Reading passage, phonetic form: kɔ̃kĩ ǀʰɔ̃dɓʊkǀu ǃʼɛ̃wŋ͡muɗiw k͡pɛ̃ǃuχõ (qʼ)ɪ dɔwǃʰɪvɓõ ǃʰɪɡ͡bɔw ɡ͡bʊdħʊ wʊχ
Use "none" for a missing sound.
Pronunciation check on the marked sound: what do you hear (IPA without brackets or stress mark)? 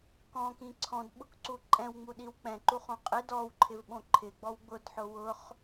qʼ